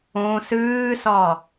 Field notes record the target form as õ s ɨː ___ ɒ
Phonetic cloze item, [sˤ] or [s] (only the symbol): s